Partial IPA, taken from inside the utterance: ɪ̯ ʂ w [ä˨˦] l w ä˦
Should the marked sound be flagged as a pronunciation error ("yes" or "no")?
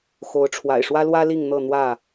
yes